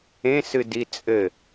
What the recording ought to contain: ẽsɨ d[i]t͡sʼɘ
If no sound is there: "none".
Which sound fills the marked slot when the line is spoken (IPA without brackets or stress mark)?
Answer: i